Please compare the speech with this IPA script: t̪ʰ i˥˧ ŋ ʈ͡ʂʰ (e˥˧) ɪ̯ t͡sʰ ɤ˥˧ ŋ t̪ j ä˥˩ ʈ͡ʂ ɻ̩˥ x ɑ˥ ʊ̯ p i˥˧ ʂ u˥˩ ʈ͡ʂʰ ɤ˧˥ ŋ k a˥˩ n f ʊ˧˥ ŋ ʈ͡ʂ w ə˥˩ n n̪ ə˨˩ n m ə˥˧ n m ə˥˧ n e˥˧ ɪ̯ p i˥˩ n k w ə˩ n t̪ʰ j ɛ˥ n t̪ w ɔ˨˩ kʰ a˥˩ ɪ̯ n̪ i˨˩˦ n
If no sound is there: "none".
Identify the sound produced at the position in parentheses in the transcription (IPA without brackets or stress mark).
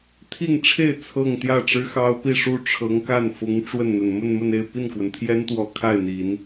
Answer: e˥˧